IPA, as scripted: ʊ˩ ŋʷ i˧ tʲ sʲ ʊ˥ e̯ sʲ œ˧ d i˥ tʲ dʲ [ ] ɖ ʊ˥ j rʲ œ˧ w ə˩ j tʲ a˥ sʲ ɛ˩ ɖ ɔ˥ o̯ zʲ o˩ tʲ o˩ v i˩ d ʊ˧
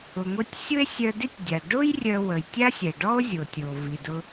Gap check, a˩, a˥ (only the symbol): a˩